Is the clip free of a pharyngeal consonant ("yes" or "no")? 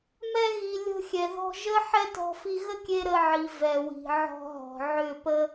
no